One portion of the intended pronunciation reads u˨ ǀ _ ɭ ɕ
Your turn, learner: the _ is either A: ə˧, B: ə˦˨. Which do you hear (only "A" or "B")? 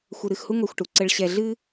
A